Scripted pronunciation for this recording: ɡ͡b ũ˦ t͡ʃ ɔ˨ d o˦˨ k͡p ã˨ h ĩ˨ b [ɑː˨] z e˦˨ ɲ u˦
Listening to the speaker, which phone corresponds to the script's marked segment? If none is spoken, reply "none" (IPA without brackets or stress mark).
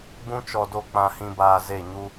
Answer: aː˨